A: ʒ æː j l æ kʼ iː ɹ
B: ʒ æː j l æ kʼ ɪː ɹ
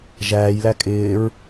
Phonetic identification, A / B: B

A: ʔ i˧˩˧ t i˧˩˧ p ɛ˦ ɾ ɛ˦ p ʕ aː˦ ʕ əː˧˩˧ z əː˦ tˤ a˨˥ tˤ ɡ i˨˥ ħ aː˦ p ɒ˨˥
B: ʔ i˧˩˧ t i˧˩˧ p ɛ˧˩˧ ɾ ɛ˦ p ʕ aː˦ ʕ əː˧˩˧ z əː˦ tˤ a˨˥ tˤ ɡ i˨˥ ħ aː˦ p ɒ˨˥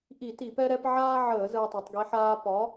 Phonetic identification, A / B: A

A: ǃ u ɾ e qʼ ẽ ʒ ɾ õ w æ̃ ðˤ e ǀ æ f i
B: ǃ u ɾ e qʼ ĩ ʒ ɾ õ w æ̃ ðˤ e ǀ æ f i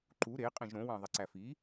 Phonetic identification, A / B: A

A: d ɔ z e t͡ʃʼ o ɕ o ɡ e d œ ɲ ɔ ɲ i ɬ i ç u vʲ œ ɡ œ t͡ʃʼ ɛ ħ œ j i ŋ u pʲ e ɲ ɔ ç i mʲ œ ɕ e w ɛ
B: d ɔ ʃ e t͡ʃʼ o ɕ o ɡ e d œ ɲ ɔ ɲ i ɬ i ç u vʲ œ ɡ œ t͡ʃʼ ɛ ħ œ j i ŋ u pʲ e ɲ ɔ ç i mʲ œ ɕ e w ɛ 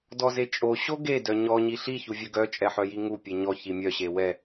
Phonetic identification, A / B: A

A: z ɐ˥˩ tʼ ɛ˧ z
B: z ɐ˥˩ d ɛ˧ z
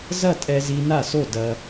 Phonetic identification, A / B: A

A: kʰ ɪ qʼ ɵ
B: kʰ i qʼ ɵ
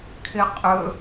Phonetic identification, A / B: A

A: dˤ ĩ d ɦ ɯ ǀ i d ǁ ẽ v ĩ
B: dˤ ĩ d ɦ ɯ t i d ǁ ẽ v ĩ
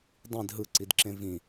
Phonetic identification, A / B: A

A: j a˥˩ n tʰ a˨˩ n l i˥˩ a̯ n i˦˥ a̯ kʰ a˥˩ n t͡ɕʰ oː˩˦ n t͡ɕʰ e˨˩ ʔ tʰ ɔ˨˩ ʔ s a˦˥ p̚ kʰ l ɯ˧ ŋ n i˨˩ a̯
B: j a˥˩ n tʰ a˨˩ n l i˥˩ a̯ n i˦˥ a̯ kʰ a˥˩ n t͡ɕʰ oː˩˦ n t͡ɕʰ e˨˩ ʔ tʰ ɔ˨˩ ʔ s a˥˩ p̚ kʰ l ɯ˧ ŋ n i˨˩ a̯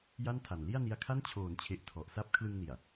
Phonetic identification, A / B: A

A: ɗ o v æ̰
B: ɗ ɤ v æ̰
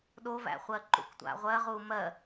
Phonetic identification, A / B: A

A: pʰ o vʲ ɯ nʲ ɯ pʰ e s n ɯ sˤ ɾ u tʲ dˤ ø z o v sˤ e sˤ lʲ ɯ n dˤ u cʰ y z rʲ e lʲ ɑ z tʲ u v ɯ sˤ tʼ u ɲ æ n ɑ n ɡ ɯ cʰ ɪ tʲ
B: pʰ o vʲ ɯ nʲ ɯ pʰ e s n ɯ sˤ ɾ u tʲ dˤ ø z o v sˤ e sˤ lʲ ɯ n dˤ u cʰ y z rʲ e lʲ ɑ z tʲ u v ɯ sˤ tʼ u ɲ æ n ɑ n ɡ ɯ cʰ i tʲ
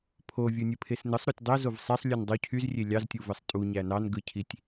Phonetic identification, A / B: B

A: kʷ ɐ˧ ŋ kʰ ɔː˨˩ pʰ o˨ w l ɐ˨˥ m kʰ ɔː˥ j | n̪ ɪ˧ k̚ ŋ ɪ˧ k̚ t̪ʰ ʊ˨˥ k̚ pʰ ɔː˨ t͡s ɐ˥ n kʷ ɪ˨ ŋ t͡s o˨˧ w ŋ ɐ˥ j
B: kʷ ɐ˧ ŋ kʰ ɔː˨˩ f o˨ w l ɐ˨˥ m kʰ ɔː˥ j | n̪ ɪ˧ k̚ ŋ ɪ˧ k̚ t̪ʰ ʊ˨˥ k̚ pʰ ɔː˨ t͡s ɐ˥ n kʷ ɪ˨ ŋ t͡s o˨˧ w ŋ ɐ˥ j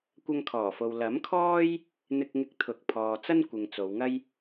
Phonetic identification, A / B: B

